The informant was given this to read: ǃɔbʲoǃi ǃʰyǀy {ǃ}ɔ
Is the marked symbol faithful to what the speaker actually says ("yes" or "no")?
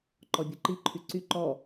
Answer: yes